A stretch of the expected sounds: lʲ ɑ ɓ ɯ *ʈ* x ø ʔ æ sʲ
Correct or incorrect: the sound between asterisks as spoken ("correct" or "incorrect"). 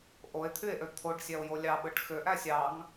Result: correct